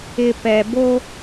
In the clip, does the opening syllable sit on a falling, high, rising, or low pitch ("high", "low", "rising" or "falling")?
low